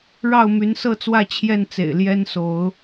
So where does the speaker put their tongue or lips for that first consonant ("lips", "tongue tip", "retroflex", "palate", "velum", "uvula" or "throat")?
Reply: retroflex